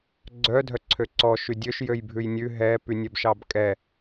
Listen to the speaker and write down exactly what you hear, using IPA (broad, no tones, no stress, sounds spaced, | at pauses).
ɡ͡ǀ œ dʱ œ ǀʰ ø ǀ ɔ ʃ y dʲ ø ʃ j ø j bʱ ʉ j nʲ ʉ ɦ ɛ p y nʲ ɛ b ʃ ɑ b kʼ ɛ